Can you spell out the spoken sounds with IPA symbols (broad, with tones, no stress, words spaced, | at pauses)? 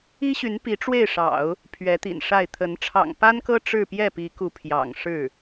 i˥ɕy˧˥npi˧˥ ʈ͡ʂwe˥˩ɪ̯ʂɑ̰˨˩˦ʊ̯ | pʰɥɛ˧˥t̪ḭ˨˩nʂa˥˩ɪ̯ t̪ʰə˧˥n ʈ͡ʂʰɑ̰˨˩ŋpa˥nkɤ˥ ʈ͡ʂɻ̩˥˧pjɛ˥˩pi˧˥ku˧˥ pʰjɑ̰˨˩ŋʂɻ̩˥˩